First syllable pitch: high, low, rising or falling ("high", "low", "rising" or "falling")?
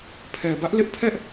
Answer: low